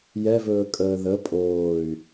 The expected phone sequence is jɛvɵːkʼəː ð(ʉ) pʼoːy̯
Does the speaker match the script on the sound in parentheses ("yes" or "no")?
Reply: no